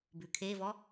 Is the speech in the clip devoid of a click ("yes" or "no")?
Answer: yes